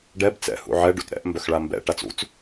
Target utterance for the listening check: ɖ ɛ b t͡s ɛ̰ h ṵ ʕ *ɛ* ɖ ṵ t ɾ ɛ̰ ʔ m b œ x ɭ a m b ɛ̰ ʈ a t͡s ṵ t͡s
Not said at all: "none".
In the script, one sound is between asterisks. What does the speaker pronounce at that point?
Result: ɛ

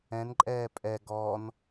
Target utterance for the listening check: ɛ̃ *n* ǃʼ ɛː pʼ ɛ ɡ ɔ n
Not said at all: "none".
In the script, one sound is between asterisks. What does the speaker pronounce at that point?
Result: n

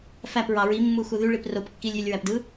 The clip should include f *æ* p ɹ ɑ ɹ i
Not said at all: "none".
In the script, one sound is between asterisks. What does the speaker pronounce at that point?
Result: æ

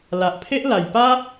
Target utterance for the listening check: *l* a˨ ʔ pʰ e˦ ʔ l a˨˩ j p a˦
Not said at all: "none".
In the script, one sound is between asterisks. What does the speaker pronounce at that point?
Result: l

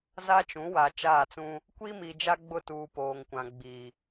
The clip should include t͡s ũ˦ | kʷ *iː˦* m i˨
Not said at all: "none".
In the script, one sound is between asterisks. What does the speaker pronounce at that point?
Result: i˦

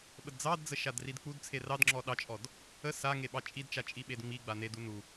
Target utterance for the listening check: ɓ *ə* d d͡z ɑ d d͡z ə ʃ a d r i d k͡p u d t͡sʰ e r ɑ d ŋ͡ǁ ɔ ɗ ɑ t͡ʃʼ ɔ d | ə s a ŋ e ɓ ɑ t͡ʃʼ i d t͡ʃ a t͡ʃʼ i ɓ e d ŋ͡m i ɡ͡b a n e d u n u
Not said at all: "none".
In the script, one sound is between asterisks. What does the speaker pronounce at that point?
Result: ə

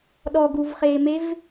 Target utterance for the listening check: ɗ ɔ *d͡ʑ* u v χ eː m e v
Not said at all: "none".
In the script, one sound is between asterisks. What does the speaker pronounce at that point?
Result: ɡ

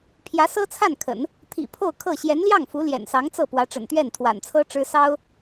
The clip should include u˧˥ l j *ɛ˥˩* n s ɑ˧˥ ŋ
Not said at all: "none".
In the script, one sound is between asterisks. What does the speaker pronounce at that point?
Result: ɛ̰˨˩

